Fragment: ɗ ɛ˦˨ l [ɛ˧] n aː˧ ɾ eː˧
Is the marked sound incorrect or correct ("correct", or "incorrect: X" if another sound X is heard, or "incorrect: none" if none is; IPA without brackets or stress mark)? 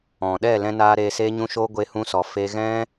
incorrect: ɛ̃˧